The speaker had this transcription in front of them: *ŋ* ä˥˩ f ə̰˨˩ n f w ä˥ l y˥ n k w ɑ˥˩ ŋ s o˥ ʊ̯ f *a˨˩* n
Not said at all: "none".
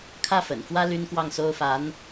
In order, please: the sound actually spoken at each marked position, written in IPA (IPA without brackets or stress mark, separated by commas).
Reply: kʰ, a˧˥